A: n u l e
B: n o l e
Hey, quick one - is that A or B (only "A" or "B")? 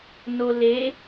B